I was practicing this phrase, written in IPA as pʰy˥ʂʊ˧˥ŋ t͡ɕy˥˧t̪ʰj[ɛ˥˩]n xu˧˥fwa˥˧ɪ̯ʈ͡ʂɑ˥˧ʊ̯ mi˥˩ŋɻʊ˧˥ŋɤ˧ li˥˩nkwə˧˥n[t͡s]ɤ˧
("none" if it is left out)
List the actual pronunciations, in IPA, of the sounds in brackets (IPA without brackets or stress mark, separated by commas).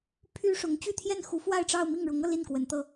ɛ˥˩, t̪